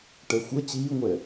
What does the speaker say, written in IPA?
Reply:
ʈ ɛ xʷ ə t͡ɕ iː ŋʷ ɛ

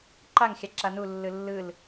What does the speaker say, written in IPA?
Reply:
ǃ a ŋ xʲ a ǁ a n u lː ɯ lː ɯ l

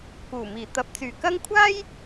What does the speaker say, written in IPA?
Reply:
k uː˨˩ m iː˨˩ t̪ ɐ˨˥ p̚ t͡s yː˨˩ k ɐ˥ ŋ kʷʰ aː˥ j

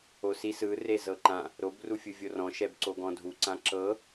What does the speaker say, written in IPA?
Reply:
o s i s ɯ r e z ɤ ǃ ã | ɾ o b r u fʲ ɯ vʲ o r ɔ̃ ʃ ɛ b ǀ o ɡ ɔ̃ dʱ u ǀ ã ǁ ɤ

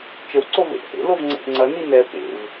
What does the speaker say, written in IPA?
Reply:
t͡ʃ ə w ǀ o v ḛ ʔ h ḛ l o v ŋ͡ǀ ḛ ʔ ŋ͡ǀ ɐ n i n ɛ p ḛ v

